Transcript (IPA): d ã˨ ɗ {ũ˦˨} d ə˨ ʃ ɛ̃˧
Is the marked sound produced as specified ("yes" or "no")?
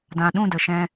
yes